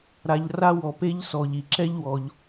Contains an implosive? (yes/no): no